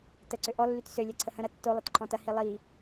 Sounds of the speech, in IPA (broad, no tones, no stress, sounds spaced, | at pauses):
t ə ǀ ʏ ʔ ɔ lː y t s ø lʲ ɛ ǀʰ ə h ə̃ ɾ ɐ tː o lˠ ɐ t ǃʰ ɔ̃ t ɐ h i lˠ i